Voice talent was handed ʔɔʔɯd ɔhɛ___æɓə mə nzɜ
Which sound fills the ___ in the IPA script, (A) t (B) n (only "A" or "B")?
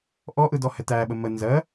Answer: A